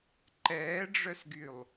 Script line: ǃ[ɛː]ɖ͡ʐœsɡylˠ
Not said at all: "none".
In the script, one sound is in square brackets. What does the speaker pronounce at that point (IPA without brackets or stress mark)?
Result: ɛː